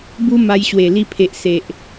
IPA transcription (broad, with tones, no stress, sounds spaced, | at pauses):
b u˦ m a˧ j ɕ w e˨˩ l i˧ pʰ e˨ ʔ s e˨ ʔ